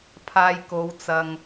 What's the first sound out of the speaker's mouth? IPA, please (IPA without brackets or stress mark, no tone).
pʰ